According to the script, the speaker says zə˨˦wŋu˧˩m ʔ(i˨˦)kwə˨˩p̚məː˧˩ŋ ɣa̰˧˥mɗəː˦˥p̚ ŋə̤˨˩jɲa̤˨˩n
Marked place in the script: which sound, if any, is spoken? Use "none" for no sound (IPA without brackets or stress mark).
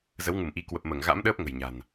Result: i˨˦